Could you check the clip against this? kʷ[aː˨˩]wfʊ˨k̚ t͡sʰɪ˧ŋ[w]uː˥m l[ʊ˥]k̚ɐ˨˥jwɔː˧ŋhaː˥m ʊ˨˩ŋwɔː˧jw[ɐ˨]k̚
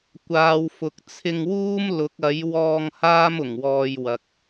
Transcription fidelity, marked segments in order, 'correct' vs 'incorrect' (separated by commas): incorrect, correct, incorrect, correct